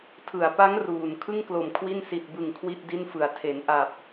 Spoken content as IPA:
tʰɯ˩˦a̯pa˦˥ŋ ruː˨˩n kʰɯ˥˩ŋklo˨˩m kʰwi˥˩n si˨˩t̚bɯ˨˩ŋ kʰwi˥˩t̚di˥˩nfɯ˨˩a̯ tʰe˩˦nʔa˨˩p̚

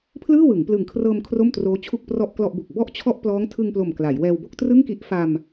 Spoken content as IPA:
pʰlɯː˥˩wɯ˩˦ŋplɯ˨˩ŋkʰrɤː˧m kʰro˥˩mtroː˦˥t͡ɕʰu˥˩k̚prɔ˥˩ʔ klɔ˥˩ʔbu˨˩k̚ bɔ˥˩ʔt͡ɕʰɔ˥˩ʔ plɔː˦˥ŋ tʰɯ˧ŋplo˨˩m kla˩˦jwɛː˧w bo˥˩k̚trɯ˥˩ŋki˦˥ʔ fa˧m

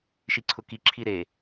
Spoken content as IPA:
ʃiǀʰʊki ǁʰiɾe

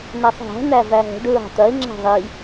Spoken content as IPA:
næsˤɦæ̤ n̪ævæɦə̤ɖ ɹɑ̤t̪ɐe̯ ŋ͡ǁæ̤ðˤi

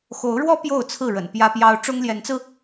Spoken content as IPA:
xo˨˦ʊ̯ɻwɔ˦ pjo˥˨ʊ̯t͡sʰɹ̩˥˨ ɻə̰˨˩npjä˦pjɑ˦ʊ̯ ʈ͡ʂʊ˦ŋljɛ˨˦nt͡sɹ̩˧

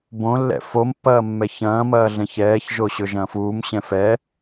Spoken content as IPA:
bõlːɛ̰ fompːɐː mːɛçɐ̃ːmɐː ɮɛ̃çɛːç ʒoɕɵʒɐ̃ːfuːm ɕɛ̃fɛː

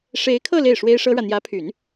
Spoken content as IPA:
ʂe˧˥ɪ̯kʰɤ˥˧ le˥˩ɪ̯ʂwe˥ɪ̯ ʂɤ˥ɻä˨ n̪jä˧˥pʰy˨˩˦n

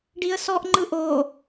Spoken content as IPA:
ɖiə̯sɔʔ ŋ͡ǃɯʔo

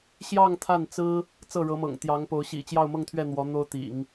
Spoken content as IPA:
ɕjɑ˥˧ŋ t̪ʰa˥˩nt͡sɹ̩˥ | t͡sɤ˥˩ɻɤ˧˥mɤ̰˨˩ŋ t̪jɑ˧˥ŋpo˧˥ʊ̯ ɕḭ˨˩t͡ɕjɑ˥˧ʊ̯mɤ˥˧ŋt̪ʰɥɛ˥˩ n̪wɔ˧˥n̪o˥ʊ̯t̪ḭ˨˩˦ŋ

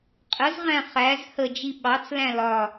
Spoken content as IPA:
qʼəzʁæ̃ χæz həd͡ʒi ɓɑt͡slæ̃ lɒ

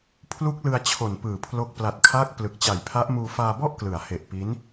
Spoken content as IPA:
pʰlu˦˥k̚lɯ˧a̯ t͡ɕʰo˨˩npɯː˨˩pʰlo˦˥k̚ pla˨˩t̚kʰaː˦˥k̚ plɯ˨˩k̚t͡ɕa˨˩jpʰa˦˥ʔmuː˧ faː˧bɔ˥˩ʔklɯ˩˦a̯ he˨˩ʔpi˦˥n

